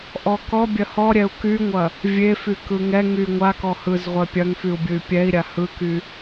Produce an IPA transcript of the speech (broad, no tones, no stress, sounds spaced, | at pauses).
ʔ ɔ k ɔ bʲ ɐ h ɔ ɾʲ ɛ u̯ k y ŋʷ ɐ | vʲ e f y k ɯ ŋ ɛ ŋ y ŋʷ a k ɔ h ɯ z ʁʷ ɛ pʲ ɐ ŋ f y u̯ bʲ ɯ y̯ pʲ ɛ i̯ ɾʲ a h ɯ k y